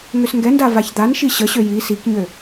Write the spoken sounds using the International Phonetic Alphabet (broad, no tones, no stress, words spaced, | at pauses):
ŋøsŋɡɛnda vaçd̪anʃi ɕəɕø ji sikɲø